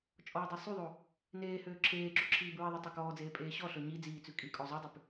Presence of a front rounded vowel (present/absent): present